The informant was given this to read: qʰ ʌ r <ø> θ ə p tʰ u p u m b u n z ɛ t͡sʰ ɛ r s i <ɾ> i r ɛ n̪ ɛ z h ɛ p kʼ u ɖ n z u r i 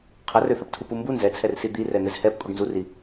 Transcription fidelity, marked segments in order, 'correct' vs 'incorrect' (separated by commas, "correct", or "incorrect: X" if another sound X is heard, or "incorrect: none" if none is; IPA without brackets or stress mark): correct, incorrect: d̪